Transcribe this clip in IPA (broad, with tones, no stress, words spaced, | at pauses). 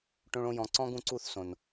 ʈõ˦ɭõ˦jɔ̃˧ ǀɔ̃˦ɡũ˧ǀu˦˨θ sõ˨n